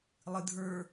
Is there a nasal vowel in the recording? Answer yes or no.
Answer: no